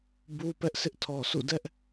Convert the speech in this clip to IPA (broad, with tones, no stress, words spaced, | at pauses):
bu˦ pɛ˦ʔsɪ˦ʔtʰɔ˨sʰṵ˦˨ dɛ˦ʔ